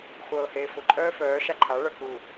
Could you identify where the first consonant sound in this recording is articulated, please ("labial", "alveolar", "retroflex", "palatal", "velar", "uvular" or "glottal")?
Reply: uvular